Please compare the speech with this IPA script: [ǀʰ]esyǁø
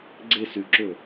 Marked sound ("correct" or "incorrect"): incorrect